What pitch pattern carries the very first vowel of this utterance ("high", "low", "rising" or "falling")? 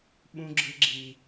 high